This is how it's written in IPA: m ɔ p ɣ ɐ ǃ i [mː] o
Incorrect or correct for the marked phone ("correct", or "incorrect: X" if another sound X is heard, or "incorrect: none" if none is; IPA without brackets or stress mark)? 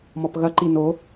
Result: incorrect: n